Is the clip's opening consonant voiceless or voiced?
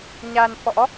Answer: voiced